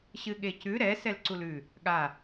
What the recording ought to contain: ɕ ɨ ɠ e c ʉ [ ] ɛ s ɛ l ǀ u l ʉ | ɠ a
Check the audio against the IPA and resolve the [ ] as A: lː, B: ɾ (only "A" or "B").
B